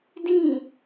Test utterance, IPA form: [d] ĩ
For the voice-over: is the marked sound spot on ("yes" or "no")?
yes